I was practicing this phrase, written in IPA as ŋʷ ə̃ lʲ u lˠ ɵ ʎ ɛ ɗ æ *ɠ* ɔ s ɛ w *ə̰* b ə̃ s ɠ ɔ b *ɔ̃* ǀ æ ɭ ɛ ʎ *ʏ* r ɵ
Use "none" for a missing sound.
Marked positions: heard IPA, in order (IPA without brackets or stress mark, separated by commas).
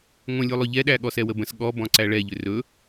ɠ, ə, ɔ̃, ʏ